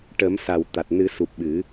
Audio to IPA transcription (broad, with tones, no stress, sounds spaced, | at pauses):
ʈ ə˨˩˦ m s a˨˩ w t̪ a˨˩ t̚ n ɨ˨˩˦ s u˨˩ p̚ ɓ ɨ˨˩˦